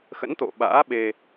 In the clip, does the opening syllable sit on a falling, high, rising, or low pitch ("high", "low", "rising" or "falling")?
rising